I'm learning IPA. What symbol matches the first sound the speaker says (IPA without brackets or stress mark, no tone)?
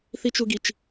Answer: θ